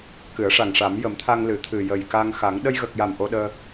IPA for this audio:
kɨ˨˩˦ə̯ ʂa˨˩ŋʂa˨˩˦m jə˨˩˦mt̪ʰa˧ŋ lɨ˨˩ t̪ʰɨ˨˩jə˨˩jka˧ŋ xa˨˩˦ŋ ɗə˧jɣə˨˩k̚ja˨˩m ʔo˧ɗəː˧

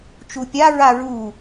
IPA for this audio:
t͡ʃupʲa ɹaɹu

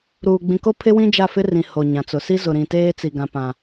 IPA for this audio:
ɾuː˨ ɡ͡bĩ˨ko˦ pʰɪ˦wĩ˦ d͡ʒa˦˨fɪ˦ rĩ˨ ho˨ɲã˨t͡sʊ˨ si˦zʊ˨ɾĩ˨teː˦ t͡si˨ɡã˨ pã˨

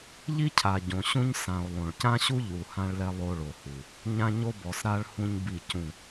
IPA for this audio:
ʎi˦cʰa˨ ɟõ˨ɕũ˦ɲ sã˨o̯ lˠõ˨ɭcã˦ɕu˦ʎu˨ hã˦ɭlɛ˦ lˠo˦ɭo˨hu˨ | ɲã˦ɲo˦bɔ˨sɾa˦ɭ hũ˦ɲbi˦˨cũ˦˨

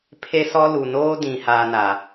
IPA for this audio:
pʰe˦sɔ˦ lu˨noː˦dĩ˨ haː˦na˨

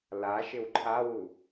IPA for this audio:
laʃɪw ǃʰawu

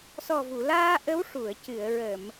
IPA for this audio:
sɔ˨˩vu˨˩˨laː˧ ʔə˧˥w ʂu˨˩˨ə̯ cɨ˨˩˨ə̯ɹə˨˩˨m

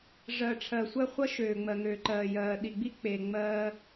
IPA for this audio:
ʐɜ˨ʈ͡ʂʰɜ˨ sʷɜ˦χʷʌ˦ ʃøː˨ŋ͡mɜ˨ŋøː˨ǃɜː˨ jɜː˨ɗi˨ɡ͡bi˦ k͡pe˨ ŋ͡mɜː˦

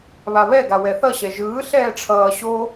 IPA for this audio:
βaβɛɡa wɛθʌɕɛ ʒɯː ɬɛːʈ͡ʂʰʌː ɕo

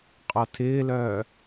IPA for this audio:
qʼɔtʰɪːlœː

